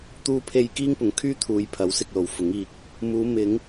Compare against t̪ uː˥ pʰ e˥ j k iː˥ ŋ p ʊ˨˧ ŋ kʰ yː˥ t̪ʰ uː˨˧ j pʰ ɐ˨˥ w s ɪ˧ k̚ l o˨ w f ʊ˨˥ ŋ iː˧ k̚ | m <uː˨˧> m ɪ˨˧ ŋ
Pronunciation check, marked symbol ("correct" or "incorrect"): correct